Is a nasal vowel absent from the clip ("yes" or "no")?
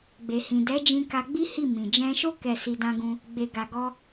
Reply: no